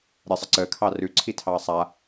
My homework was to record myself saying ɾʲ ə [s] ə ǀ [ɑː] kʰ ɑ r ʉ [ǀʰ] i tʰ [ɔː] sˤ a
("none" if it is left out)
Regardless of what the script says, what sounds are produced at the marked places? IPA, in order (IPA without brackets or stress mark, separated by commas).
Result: sˤ, əː, ǀʰ, ɑː